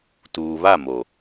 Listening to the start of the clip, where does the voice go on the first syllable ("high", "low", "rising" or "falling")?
low